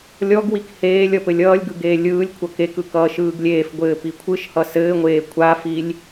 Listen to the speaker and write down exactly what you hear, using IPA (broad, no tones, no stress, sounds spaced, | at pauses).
lʲ ɔ ɡ w i k h eː lʲ ʌ p ɘ lʲ ʌː lʲ ɡ ɯ ɡ eː lʲ ɯː lʲ kʷʰ ʌ k e k ɯ k ʌː ʃ ɯː ɡ lʲ eː f ɡʷ ɘː p i kʷʰ ɯ ʃ h ʌ s ɘː ŋʷ eː kʷʰ a f i lʲ